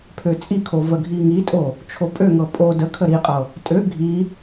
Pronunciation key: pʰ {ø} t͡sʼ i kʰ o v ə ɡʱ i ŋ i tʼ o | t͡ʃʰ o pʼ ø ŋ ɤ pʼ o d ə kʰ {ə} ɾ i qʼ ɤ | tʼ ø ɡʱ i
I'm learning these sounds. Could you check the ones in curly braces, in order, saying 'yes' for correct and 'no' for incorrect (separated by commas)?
yes, yes